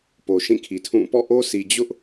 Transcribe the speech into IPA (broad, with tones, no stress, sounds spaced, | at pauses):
p o˨ ʃ ĩ˦˨ kʰ i˨ tʰ ũ˦˨ p ɔ̰˦˨ ʔ o˦ sʰ i˨ d͡ʑ ʊ˦ ʔ